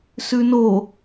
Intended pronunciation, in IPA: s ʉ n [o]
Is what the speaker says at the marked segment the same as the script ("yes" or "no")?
yes